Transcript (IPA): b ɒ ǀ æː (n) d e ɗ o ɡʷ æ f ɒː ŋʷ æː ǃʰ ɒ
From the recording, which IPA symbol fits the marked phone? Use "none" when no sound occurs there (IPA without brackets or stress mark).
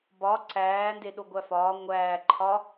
n